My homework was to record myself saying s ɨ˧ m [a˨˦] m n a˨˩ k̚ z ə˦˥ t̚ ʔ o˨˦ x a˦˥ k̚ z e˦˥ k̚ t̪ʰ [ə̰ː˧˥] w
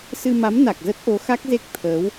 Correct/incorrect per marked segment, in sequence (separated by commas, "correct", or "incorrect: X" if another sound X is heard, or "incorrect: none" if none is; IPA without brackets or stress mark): correct, incorrect: əː˨˦